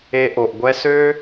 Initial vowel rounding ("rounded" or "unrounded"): unrounded